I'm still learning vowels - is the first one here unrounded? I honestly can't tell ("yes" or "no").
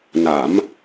yes